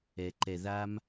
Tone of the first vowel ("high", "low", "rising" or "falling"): low